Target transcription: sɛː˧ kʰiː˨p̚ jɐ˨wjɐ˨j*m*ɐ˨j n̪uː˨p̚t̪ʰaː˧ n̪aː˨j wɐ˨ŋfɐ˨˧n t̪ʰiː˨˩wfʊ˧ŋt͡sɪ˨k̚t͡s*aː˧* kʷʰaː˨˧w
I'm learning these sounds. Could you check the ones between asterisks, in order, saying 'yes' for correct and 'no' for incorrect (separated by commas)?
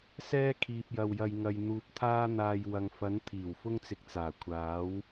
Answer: no, no